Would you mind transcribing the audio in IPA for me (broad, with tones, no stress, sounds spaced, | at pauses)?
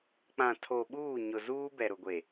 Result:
k͡p ã˨ tʰ o˨ ɓ uː˦˨ ɲ ʊ˨ z uː˦ b ɛ˨ ɾ ʊ˨ ɡʷ e˨